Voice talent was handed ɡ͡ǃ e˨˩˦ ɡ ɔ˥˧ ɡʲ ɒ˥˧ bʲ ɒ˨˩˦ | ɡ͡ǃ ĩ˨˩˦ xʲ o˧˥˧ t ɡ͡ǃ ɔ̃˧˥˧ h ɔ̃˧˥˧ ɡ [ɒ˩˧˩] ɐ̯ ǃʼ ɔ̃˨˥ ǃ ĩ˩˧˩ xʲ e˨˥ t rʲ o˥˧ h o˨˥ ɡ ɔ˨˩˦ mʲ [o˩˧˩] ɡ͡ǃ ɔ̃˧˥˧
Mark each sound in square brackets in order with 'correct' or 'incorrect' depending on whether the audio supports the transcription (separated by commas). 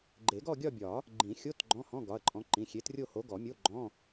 correct, incorrect